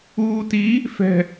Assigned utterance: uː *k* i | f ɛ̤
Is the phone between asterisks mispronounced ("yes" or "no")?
yes